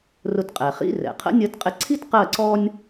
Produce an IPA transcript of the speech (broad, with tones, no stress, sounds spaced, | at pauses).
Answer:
r ʊ˧ t qʼ ɛ˩ χ ḭ˧˥˧ r ɛ̰˩ qʰ ə̰˧˥ nʲ ɜ˧ t qʼ ɪ˧ ǀʰ i˥ t q ɜ˥˨ ǀ ɔ˥ nʲ